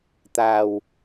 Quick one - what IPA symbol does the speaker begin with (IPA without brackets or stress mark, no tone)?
t̪